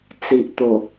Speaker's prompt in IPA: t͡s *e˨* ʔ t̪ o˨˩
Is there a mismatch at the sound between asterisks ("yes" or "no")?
yes